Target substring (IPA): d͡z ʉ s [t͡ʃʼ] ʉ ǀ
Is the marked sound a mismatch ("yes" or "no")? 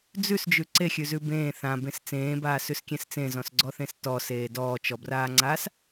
yes